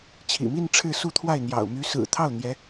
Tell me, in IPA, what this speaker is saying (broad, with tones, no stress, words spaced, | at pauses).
t͡ɕʰḭ˨˩mi˥˧n ʈ͡ʂʰɻ̩˥˧su˥˧t̪ʰwa˥˩ɪ̯ n̪jɑ̰˨˩ʊ̯ my˧˥sɹ̩˨˩t̪ʰɑ˥˩ʊ̯ n̪jɛ˧˥